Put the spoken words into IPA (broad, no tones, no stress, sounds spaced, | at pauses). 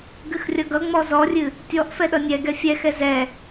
ɡ ɨ x rʲ ʌ ɡ ʌ ŋ͡m ɔ z ɔ rʲ ɨ | tʲ ɔ ʔ f ɛ ɗ ʌ nʲ ɛ ɡ ɛ fʲ ɛ x ɛ z ɛ